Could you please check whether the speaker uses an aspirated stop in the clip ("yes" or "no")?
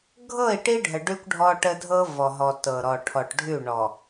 yes